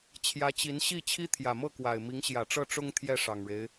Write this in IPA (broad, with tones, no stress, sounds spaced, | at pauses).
t͡ɕʰ j ä˧˥ t͡ɕ i˧˥ n ɕ i˥˩ t͡ɕʰ i˥ t̪ʰ j ä˨˩ m ɤ˥˩ k w a˨˩ ɪ̯ m i˧˥ ŋ ɕ j ä˨˩ ʈ͡ʂ ɤ˥˩ ʈ͡ʂ ʊ˥ ŋ t̪ʰ j ɛ˥˩ ʂ ɑ˨˩ ŋ ɻ e˦ ɪ̯